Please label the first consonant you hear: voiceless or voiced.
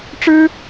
voiceless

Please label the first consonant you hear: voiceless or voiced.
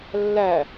voiced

